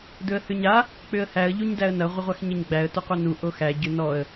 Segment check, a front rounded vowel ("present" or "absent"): present